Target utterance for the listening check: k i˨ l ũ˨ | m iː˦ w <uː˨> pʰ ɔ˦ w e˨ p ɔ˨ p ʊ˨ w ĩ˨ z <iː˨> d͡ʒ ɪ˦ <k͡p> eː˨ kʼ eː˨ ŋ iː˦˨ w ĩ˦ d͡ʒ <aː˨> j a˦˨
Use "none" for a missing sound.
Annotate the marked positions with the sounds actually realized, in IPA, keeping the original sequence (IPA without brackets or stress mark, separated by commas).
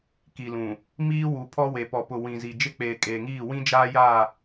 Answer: u˨, i˨, k͡p, aː˦